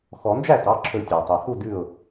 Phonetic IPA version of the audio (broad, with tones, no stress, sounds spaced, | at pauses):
x ɔ˨˩˦ n d͡ʒ æ˥˩ t ɑ˩˧˩ ǁʰ ɵ˨˩˦ tʲ ɑ˩ tˤ ʉ˩ h u˥˩ d ʉ˥˩ ʊ̯